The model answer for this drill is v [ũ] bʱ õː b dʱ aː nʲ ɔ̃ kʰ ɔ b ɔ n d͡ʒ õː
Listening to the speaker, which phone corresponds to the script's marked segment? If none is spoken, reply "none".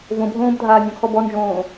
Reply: õ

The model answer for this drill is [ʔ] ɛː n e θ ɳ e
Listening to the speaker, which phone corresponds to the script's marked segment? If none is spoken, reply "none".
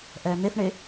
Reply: ʔ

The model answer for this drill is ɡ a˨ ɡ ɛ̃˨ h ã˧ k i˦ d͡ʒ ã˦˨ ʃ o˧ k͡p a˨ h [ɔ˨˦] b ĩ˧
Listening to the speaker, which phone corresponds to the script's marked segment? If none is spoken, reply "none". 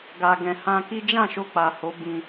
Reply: o˨˦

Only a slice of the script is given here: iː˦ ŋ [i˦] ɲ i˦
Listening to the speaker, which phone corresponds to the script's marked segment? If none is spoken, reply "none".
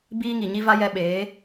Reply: i˨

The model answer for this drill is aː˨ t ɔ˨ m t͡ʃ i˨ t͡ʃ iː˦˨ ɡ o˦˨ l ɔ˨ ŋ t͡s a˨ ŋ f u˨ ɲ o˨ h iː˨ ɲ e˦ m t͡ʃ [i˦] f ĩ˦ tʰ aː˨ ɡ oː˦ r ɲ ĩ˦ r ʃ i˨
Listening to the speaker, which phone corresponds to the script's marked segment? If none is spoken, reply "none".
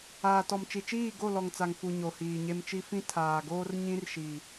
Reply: i˦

